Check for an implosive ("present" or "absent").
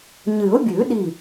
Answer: present